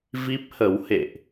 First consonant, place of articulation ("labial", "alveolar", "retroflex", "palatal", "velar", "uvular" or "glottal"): labial